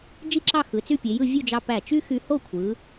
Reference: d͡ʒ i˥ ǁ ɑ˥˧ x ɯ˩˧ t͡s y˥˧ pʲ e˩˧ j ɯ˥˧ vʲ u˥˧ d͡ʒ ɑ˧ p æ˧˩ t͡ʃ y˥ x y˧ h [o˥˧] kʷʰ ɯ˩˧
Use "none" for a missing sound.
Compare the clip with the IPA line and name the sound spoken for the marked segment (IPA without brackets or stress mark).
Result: o˥˧